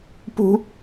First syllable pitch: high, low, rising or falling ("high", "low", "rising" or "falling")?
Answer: high